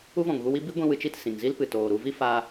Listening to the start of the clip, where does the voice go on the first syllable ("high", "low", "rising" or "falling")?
high